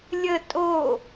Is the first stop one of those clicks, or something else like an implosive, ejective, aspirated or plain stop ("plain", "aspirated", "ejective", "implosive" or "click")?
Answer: ejective